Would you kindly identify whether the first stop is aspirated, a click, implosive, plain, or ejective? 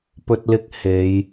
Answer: plain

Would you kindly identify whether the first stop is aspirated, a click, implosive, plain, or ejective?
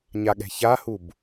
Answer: implosive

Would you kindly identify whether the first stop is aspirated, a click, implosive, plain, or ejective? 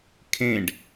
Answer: aspirated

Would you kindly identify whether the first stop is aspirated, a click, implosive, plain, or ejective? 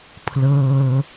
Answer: aspirated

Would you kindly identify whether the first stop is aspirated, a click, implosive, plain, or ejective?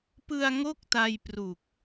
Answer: plain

